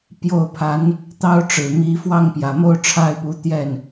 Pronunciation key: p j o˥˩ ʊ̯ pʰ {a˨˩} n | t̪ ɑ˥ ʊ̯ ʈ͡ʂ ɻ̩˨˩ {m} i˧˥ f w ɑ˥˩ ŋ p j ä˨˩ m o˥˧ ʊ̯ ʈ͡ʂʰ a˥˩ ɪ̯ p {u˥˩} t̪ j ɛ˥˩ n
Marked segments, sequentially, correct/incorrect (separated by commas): incorrect, correct, incorrect